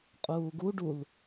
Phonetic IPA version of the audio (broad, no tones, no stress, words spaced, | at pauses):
qʼuːɡu ɖul